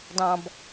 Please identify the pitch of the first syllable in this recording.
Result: high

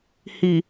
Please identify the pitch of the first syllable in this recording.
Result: low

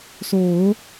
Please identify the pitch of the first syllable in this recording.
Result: low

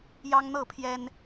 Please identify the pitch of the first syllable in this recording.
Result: high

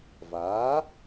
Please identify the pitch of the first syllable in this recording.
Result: rising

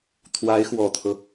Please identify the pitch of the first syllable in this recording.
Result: rising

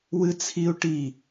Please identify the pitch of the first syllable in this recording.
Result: high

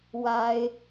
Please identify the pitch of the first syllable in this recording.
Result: high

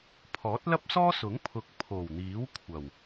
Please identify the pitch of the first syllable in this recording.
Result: rising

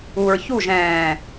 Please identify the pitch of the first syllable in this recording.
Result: low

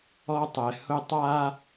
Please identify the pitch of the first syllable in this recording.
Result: high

